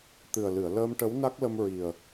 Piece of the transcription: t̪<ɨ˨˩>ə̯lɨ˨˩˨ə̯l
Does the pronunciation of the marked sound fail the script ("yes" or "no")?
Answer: no